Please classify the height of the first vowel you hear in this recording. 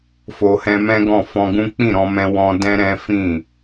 mid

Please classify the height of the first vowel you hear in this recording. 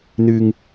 high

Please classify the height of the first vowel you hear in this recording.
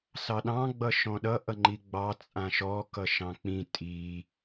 low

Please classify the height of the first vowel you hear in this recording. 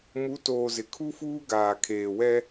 high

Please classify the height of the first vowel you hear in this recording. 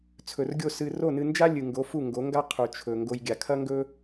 mid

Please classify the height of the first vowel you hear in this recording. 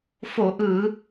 mid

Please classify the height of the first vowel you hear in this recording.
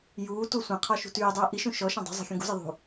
high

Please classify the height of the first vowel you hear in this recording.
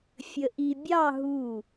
mid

